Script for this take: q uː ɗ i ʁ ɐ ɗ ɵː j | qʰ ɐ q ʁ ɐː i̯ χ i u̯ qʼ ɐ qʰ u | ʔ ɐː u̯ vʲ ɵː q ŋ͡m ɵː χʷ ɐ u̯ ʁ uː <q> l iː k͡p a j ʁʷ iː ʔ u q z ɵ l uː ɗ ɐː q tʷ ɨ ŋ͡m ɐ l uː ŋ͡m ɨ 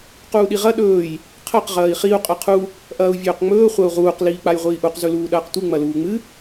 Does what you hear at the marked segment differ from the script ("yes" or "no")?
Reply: no